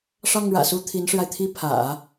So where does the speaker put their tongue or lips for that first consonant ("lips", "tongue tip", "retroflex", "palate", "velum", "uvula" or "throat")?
retroflex